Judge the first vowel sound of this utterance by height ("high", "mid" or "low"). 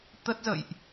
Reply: mid